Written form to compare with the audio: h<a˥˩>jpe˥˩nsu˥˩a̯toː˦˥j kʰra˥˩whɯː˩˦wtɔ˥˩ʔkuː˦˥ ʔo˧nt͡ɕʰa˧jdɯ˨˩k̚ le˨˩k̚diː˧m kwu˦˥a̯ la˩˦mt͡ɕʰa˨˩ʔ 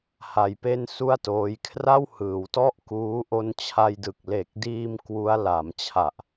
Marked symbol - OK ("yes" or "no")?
no